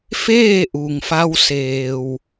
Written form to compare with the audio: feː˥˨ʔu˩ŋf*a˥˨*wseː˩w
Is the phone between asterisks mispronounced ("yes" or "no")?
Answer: yes